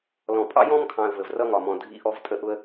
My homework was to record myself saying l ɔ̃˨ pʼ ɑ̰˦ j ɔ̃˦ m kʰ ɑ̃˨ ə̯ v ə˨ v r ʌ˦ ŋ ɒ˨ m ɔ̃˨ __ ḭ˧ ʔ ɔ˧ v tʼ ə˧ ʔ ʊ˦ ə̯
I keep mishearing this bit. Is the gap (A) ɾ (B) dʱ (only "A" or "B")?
B